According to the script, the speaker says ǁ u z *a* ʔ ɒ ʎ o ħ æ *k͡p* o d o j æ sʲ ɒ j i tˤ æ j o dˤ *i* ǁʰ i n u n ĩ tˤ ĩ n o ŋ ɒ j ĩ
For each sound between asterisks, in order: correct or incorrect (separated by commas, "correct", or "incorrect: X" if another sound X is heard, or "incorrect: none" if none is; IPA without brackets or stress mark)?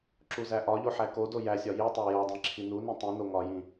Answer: incorrect: æ, incorrect: k, incorrect: ĩ